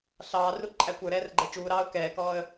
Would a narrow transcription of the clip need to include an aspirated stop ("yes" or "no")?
no